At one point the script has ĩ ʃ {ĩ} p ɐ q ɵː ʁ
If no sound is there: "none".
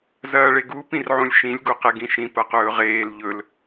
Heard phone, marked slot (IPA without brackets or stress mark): ĩ